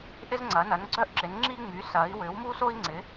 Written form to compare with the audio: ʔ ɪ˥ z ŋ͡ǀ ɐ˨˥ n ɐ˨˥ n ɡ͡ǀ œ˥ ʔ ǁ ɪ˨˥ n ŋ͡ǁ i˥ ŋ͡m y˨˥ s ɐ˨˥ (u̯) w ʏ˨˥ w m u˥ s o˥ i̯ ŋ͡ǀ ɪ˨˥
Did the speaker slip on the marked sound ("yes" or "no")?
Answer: yes